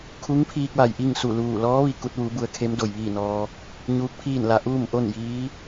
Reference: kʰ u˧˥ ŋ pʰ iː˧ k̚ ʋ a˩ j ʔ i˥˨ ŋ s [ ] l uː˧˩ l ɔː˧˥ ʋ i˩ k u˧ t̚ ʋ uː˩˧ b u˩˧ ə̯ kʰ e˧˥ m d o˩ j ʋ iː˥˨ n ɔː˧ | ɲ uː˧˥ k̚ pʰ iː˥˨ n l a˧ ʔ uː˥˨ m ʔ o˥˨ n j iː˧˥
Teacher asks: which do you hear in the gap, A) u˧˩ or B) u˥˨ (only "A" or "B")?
A